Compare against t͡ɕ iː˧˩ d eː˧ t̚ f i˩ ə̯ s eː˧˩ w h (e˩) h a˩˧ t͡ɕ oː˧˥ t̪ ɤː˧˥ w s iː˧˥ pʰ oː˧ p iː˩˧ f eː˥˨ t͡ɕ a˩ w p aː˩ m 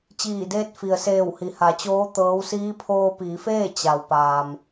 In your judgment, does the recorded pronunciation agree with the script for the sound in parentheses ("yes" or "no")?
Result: no